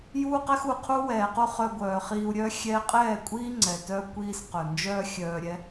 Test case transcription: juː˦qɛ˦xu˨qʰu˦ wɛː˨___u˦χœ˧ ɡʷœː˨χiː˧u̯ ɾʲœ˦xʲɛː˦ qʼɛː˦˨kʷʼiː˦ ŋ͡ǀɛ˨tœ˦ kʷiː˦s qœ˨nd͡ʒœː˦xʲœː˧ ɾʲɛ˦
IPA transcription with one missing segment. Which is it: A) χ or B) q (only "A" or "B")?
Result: B